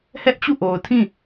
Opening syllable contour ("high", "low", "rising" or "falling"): high